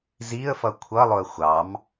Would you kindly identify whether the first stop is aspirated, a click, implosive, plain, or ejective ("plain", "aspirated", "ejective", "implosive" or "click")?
aspirated